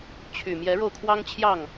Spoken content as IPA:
t͡ɕʰ y˨˩ m j ɛ˨˦ ɻ o˧ ʊ̯ kʰ w ɑ˦ ŋ t͡ɕʰ j ɑ˥˨ ŋ

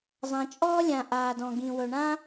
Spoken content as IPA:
zˤ ã˩ t͡ʃʼ ɔː˥ lʲ ã˩ ʔ aː˩ d ɔ̃˩ ɡ ĩ˩ w ɵ˩ ɳ ã˥

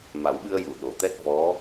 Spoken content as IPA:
m a˨˩˦ w ɓ ɨ˧ ə̯ j u˨˩˨ ɗ o˨˩˨ t̪ ɛ˦˥ t̚ v ɔ˧˥

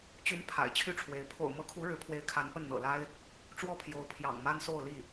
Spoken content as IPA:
t͡ɕ y˧˥ n pʰ a̰˨˩ ɪ̯ t͡ɕʰ y˥˩ ʈ͡ʂʰ w e˧˥ ɪ̯ pʰ o̰˨˩ ʊ̯ m ɤ˧˥ kʰ u˧˥ ɻ ɻ̩˧˥ pʰ w e˧˥ ɪ̯ kʰ a˧˥ n p ə˥˩ n n̪ ɤ̰˨˩ l a˥ ɪ̯ | ʈ͡ʂ w ɔ˥˩ pʰ j o˧˥ ʊ̯ pʰ j ɑ̰˨˩ ŋ m a˥ n s o˥˧ ʊ̯ l i˥˩

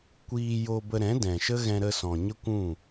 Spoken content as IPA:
kʷ iː˧ j o˧ b ə˧ ɾ ɛ̃˨˦ d ɛ̃˨ ʃ ə˦ ɣ ɛ̃˧ ɾ ə˧ s ɔ̃˨ ɲ ə˦ kʷ ũ˦˨

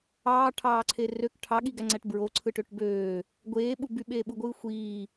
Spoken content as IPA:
ɑː ʈʰ ɑː ǀʰ e r ø k ʈʰ ɑ ɠ i ɡ æ ŋ͡ǀ æ ʈ b ɹ o ǀʰ ɯ ʈ ø ʈ b øː | ɡʷ eː ɓ u b y ɓ eː ɓ u ɡʷ ɯː xʷ iː

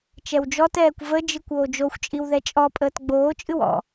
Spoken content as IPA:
t͡ʃ ɛ w d͡ʒ ɔ t ɛː kʷ v ə d͡ʒ ɨ kʷ oː d͡ʒ o xʷ t͡ʃʼ i w ð ɛ t͡ʃʼ ɔ pʼ əː t ɡ͡b oː t͡ʃʼ ɨ w ɔ̰

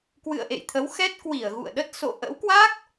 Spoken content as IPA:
k w ɨ̰˧˨ ə̯ ʔ ḛ˧˨ j t̪ʰ ə˨˦ w x ɛ˦˥ t̚ k w i˧˩ ə̯ ɣ ṵ˧˨ ə̯ ɗ ə˦˥ t̚ s o̰˧˨ ʔ ə̰˧˥ w k w a˦˥ k̚

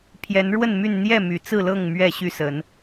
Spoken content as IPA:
pʰ j ɛ˨˦ n ɻ w ə˥˨ n m y˥˨ n n̪ j ɛ˥˨ m y˨˩ t͡s ɹ̩˥˨ l ɤ˥˨ ŋ m ɥ ɛ˥˨ ɕ y˥˨ s ə˨˦ n

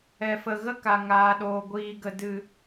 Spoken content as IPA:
ɛ˨ f ə˨ ɣ ə˦ k a˨ ŋ aː˨ ɗ oː˨ ɡʷ iː˨ ɡ ə˨ d ɨ˨

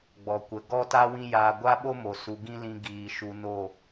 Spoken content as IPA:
ɡ͡b ɔ˨ kʷ ə˨ ɡ ɔ˦ t a˦ w ĩ˦ j aː˧ ɡʷ a˦ ɓ o˦ m o˨ s u˨ ɡ ĩ˦ l ĩ˧ ɡ iː˨ ʃ u˧ n o˦˨

